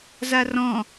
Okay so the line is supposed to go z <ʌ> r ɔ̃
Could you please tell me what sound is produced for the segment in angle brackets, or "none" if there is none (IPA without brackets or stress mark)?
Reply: a